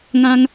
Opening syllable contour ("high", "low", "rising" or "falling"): high